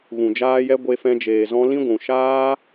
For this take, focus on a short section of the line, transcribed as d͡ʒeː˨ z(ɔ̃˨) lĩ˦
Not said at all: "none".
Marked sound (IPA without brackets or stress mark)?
ɔ̃˧